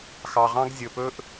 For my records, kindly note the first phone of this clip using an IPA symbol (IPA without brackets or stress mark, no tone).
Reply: x